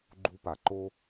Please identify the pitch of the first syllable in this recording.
high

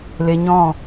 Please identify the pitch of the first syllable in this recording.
low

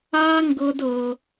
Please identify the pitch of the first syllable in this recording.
high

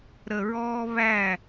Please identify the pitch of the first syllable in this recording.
low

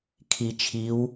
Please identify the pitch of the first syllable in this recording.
low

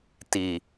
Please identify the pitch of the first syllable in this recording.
low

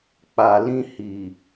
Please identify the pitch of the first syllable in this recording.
low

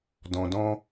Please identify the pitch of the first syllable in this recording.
low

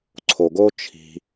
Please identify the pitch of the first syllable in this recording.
low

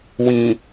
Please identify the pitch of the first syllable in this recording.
low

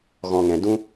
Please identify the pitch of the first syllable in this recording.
low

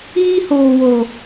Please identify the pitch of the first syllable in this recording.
high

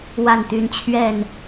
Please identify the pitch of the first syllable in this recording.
falling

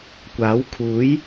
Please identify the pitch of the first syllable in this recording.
rising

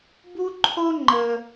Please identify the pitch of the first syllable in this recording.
high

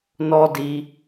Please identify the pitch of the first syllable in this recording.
high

